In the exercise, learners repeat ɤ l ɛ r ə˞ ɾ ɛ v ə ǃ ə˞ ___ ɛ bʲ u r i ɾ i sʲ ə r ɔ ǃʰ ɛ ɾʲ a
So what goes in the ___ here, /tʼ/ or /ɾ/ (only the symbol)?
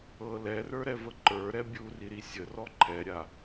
ɾ